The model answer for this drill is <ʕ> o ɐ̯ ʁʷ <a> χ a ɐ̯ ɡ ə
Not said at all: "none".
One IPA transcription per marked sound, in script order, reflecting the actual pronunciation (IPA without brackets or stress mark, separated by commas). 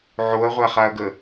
ʕ, a